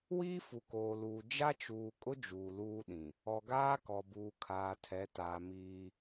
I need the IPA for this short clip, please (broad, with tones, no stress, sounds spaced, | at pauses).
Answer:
w iː˦ f u˨ k oː˨ l uː˨ d͡ʒ a˦ t͡ʃ uː˨ kʼ ʊ˦ d͡ʒ uː˨ l uː˦ ɗ ĩ˨ | ɔ˨ ɡ aː˦ k ɔ˨ b uː˨ kʰ aː˨ tʰ ɛ˨˦ t aː˨ m iː˦